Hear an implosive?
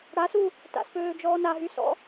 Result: no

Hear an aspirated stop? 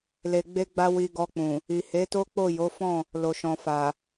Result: no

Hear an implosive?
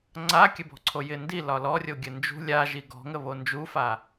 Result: no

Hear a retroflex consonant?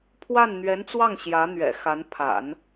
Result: no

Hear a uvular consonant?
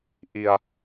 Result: no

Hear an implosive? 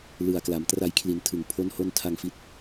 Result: no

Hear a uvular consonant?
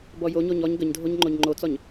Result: no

